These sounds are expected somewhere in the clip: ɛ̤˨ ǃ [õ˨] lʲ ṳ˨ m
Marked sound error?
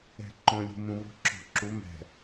no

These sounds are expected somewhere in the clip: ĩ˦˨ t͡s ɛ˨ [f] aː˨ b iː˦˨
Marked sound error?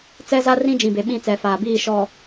no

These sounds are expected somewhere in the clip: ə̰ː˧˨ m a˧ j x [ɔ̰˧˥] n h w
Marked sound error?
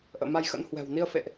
yes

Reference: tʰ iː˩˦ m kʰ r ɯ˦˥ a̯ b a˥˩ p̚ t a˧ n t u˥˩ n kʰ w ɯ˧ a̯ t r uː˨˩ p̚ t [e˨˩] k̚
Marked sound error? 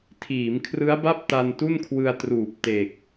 no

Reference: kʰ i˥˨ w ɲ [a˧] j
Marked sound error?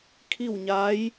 yes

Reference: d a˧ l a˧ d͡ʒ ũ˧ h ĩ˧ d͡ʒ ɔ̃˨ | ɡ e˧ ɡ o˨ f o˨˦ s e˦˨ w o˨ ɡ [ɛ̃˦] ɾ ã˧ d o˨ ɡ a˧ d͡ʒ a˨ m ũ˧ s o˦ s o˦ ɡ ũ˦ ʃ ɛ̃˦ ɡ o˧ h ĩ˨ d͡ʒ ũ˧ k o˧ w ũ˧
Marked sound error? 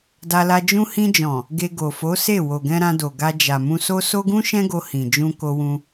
yes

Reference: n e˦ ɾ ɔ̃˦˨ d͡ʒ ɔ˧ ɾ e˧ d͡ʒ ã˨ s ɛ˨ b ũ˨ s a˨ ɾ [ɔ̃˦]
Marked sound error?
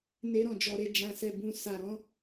yes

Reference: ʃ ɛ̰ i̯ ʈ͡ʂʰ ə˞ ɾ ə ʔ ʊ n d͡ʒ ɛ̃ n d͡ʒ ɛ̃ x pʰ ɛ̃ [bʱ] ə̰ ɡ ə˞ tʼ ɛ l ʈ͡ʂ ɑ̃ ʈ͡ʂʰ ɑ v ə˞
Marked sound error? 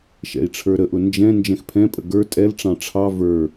yes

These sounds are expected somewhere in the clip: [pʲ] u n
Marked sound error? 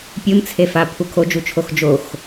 no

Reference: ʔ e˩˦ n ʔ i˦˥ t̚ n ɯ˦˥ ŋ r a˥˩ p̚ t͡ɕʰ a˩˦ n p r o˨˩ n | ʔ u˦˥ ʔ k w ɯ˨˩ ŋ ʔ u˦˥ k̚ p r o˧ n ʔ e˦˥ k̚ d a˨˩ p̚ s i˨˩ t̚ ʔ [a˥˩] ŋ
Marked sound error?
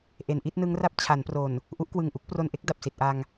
yes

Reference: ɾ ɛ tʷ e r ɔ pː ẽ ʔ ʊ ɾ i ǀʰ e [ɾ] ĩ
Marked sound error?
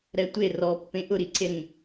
no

